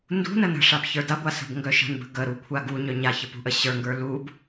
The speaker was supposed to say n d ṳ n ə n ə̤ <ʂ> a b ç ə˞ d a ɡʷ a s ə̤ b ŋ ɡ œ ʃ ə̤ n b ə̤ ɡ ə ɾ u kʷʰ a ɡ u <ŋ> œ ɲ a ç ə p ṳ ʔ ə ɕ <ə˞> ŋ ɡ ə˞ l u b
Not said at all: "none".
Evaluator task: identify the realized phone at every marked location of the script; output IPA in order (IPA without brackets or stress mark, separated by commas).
ʂ, ɲ, ə˞